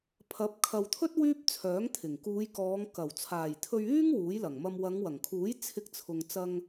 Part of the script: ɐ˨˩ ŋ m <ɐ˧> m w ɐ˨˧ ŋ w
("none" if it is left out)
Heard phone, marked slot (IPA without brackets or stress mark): ɐ˧